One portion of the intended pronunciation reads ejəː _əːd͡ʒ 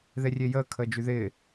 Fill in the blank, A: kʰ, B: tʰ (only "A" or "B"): A